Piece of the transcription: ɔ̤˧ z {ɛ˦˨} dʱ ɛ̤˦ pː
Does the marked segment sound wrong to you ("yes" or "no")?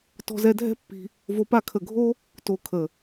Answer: yes